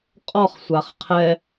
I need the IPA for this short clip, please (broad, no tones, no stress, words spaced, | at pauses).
qʼɔχsʷaχ qʰɛ